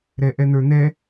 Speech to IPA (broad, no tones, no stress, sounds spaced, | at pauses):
ɾ ɛ ʔ ɛ n̪ ə˞ n̪ ɛ